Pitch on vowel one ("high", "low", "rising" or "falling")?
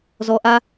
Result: low